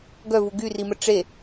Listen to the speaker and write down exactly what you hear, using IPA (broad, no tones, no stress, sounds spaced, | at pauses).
ɡ œ v u ɡ y r i m ə ʈ͡ʂ e